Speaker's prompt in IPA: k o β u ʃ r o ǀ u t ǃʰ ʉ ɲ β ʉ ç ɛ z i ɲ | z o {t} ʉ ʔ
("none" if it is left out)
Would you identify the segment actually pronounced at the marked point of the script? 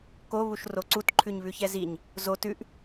t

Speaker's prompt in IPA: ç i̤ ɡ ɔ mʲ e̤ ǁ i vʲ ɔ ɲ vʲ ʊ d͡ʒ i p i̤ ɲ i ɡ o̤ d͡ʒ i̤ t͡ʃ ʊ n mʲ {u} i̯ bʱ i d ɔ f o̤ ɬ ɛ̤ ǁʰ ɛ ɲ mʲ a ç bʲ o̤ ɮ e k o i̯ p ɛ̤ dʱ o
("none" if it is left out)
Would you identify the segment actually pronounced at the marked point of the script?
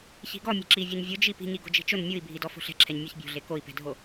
u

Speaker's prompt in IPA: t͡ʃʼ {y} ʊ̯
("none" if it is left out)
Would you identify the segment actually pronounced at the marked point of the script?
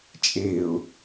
e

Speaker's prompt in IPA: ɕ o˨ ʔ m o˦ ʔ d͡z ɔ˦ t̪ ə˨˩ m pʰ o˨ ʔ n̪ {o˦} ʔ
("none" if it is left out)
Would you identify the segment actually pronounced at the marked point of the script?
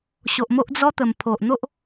o˦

